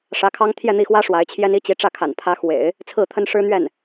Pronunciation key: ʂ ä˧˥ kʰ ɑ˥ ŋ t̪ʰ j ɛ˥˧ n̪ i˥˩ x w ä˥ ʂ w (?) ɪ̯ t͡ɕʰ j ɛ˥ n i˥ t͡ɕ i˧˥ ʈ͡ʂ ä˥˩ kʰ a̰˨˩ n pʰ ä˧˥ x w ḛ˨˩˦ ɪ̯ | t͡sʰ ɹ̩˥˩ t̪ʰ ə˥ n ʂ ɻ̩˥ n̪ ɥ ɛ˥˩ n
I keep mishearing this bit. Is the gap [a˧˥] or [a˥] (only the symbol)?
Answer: a˧˥